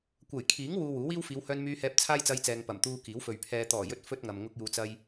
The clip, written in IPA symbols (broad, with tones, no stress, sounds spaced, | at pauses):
kʷ ɐ˨˩ j kʰ iː˨˥ ŋ w uː˧ w uː˨˥ w iː˥ w f iː˨˧ w h œː˧ n m yː˧ h ɛː˧ p̚ t͡sʰ aː˥ j t͡s ɐ˧ j t͡s ɛː˨ ŋ p ɐ˨˩ m t̪ uː˧ k iː˨˥ w f ɵ˨ ɥ pʰ ɛː˨ t̪ ɔː˨˩ j ɵ˧ t̚ f ɵ˥ t̚ ŋ ɐ˨ m ŋ ʊ˥ k̚ j uː˧ t͡s ɐ˥ j